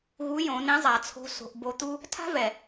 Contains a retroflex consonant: no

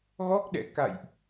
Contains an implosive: yes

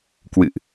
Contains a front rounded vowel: no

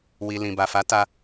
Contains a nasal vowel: yes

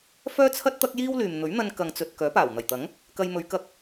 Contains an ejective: no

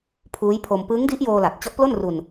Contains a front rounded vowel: no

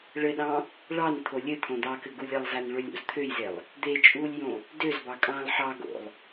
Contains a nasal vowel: yes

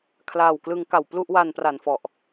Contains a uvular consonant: no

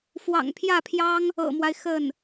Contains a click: no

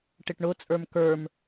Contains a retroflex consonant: yes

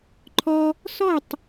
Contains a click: yes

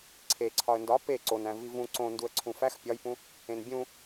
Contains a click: yes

